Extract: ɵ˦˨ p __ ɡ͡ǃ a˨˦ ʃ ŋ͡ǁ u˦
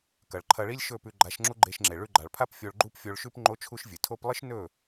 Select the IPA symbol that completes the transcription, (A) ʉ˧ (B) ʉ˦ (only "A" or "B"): A